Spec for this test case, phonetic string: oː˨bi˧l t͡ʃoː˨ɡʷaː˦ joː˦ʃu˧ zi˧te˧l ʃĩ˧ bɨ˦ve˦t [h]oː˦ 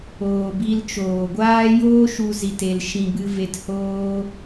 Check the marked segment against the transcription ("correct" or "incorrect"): correct